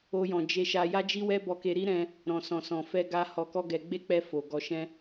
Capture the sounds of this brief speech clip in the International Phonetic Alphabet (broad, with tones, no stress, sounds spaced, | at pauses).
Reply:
o˦ j ɔ̃˧ d͡ʒ e˧ ʃ a˧ j a˦ d͡ʒ i˦ w ɛ˦ b ɔ˧ k e˧ ɾ i˦ ɾ ɛ̃˧ | ɾ ɔ̃˨ s ɔ̃˨ s ɔ̃˨ f ɛ˧ ɡ a˧ h ɔ˧ k ɔ˦ ɡ ɛ˧ ɡ͡b e˦ k͡p ɛ˧ f o˨ ɡ ɔ˧ ʃ ɛ̃˦